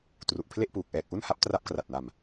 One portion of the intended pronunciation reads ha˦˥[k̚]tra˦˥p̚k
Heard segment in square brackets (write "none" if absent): p̚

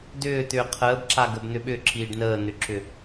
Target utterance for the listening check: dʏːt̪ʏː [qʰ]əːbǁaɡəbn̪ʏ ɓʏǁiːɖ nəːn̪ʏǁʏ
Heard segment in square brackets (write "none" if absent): qʰ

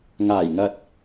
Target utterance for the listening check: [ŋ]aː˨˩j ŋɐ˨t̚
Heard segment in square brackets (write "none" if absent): ŋ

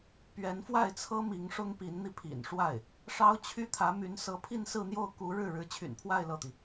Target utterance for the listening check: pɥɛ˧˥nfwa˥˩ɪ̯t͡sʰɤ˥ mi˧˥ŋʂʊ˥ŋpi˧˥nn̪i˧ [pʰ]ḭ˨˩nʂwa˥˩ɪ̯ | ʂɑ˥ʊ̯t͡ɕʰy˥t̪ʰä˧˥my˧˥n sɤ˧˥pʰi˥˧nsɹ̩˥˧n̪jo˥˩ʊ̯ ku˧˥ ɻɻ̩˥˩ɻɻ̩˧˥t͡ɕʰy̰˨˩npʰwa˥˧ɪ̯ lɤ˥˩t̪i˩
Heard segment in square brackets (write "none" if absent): pʰ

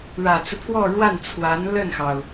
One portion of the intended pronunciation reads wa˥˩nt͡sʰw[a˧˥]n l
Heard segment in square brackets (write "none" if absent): a˧˥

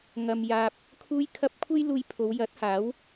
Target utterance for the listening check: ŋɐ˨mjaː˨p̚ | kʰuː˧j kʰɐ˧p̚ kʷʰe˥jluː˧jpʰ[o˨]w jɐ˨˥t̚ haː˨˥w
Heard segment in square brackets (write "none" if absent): o˨˧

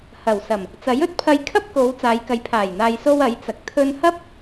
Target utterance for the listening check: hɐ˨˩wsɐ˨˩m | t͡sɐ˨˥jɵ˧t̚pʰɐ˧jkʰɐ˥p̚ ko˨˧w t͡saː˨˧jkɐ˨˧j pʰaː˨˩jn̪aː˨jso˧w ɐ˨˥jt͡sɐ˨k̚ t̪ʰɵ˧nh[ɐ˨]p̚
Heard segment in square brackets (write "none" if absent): ɐ˥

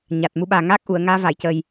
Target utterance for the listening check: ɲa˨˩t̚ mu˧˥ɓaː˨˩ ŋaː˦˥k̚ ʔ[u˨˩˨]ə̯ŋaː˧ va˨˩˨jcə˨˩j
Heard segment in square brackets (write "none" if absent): u˨˩˨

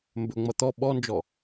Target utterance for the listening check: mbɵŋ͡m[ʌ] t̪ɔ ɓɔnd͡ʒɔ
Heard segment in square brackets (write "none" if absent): ʌ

